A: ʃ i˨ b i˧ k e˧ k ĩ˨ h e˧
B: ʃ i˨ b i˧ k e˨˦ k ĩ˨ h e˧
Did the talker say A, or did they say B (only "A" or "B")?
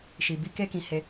A